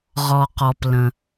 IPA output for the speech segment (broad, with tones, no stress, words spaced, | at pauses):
ʁɔ˩qɔ˩plə̃˩